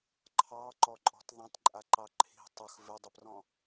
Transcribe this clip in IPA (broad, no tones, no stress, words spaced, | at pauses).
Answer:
ǃʰɑ ǃɔǃʼɔ̤t ðˤãtǃʼaǃɑ ǃʰi̤ tˤɵx vɪdˤɪprɔ̃